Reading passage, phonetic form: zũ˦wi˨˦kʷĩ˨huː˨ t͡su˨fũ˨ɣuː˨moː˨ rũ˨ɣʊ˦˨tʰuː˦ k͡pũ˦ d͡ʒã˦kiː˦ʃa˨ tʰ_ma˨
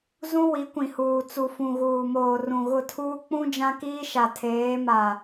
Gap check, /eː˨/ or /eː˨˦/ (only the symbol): eː˨˦